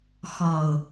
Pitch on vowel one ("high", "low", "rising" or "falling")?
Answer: low